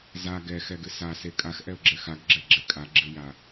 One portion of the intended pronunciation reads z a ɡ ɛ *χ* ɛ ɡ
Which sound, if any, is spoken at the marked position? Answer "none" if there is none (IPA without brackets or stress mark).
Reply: x